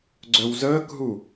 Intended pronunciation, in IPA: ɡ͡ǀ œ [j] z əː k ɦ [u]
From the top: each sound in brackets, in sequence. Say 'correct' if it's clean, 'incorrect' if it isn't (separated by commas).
incorrect, correct